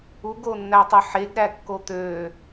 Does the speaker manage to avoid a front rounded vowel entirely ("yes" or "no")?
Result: no